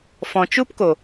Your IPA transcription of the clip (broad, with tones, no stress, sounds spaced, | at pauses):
f ɔ̃˨ t͡ʃ u˦ p k o˨